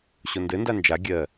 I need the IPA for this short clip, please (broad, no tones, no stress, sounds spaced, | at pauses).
ɕ o n d ɘ n d a n d͡ʒ a ɡʲ ɜ